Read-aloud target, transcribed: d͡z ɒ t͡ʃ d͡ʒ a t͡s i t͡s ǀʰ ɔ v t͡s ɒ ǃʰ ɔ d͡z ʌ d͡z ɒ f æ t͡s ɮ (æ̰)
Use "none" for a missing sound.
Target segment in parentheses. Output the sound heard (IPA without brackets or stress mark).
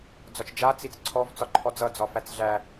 æ